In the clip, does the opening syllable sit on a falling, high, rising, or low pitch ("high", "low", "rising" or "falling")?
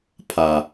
low